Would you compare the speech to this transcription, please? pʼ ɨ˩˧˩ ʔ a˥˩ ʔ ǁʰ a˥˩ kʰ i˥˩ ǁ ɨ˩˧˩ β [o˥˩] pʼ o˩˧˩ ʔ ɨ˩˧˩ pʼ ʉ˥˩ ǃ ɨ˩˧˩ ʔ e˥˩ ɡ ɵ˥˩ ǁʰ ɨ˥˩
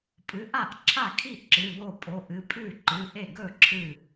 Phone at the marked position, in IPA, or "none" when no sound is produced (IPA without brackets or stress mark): o˥˩